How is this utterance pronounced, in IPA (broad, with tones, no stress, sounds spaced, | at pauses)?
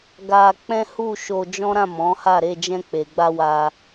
ɡ a˧ k͡p ɛ̃˦ h u˦˨ ʃ o˧ d͡ʒ ɔ̃˦ ɾ ã˦˨ m ɔ̃˨˦ h a˦˨ ɾ e˧ d͡ʒ ɛ̃˧ k͡p e˨ ɡ͡b a˧ w a˧